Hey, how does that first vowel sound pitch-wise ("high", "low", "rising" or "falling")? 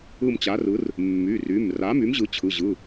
falling